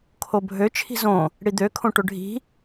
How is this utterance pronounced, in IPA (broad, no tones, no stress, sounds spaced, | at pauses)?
kʰ o bʱ ø t͡ʃʰ i̤ z õ | ɽ i d̪ ø kʰ õ ʈ ɵ ɖʱ i̤